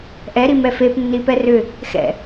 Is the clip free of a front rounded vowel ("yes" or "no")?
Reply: no